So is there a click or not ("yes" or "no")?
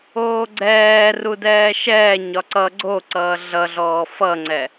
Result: yes